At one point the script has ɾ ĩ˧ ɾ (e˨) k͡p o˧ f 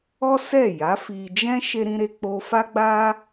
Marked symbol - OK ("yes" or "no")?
no